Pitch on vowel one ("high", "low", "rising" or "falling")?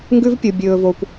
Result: high